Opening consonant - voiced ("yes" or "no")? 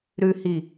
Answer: yes